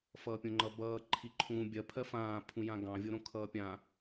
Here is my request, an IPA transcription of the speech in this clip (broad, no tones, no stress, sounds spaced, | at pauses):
f ʌː pʲ õ ŋ͡ǃ ʌ b ʌː ǃʰ i ǃʰ ũː bʲ ɜ pʰ ɜ f ãː pʰ ũ j ã ɡ ɑ̃ vʲ o ɾ õ kʰ ʌː pʲ ã